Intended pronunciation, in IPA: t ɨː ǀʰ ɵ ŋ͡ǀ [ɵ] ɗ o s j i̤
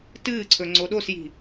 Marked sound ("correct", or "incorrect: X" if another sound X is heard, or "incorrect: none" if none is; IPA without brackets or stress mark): incorrect: o